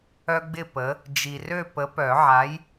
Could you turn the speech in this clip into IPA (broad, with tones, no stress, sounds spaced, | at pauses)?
œ˦ ɡ͡b ɪ˥˨ p ə˨˥ | d͡ʒ i˨ r ø˥˨ p ə˨˥ p œ˨˩˦ ʕ a˨˥ j